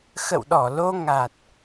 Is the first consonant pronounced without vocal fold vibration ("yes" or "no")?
yes